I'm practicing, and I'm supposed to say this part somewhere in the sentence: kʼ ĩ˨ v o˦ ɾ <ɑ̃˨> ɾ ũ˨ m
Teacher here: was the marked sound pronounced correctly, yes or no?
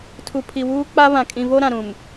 no